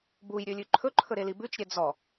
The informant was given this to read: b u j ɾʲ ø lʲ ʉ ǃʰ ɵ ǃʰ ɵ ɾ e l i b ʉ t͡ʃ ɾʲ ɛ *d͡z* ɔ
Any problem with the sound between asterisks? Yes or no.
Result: no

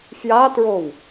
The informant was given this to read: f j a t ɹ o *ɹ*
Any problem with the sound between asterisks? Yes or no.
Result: yes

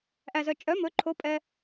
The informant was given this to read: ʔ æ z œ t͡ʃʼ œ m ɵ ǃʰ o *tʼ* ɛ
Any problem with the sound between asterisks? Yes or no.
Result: yes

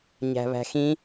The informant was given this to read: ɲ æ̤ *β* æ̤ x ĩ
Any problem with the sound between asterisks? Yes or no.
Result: no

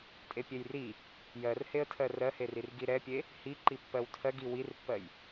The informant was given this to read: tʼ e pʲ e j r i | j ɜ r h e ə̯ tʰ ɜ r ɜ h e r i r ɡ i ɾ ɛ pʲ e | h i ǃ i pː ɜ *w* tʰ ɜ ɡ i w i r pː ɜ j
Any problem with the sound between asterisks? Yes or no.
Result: no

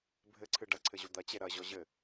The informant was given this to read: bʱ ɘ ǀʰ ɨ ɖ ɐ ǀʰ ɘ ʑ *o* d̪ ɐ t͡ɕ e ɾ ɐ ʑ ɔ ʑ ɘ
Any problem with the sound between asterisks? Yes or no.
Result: no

